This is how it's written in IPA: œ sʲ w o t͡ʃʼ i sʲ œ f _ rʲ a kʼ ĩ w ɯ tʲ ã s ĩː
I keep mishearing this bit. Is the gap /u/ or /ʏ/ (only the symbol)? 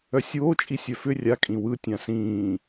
ʏ